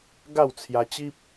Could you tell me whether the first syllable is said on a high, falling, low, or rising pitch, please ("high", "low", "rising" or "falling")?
falling